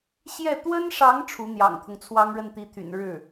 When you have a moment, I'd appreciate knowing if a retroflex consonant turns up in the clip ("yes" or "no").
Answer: yes